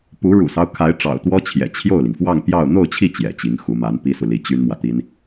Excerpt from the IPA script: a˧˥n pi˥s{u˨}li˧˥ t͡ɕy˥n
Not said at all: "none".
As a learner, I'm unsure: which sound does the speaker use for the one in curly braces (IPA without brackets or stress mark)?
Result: u˨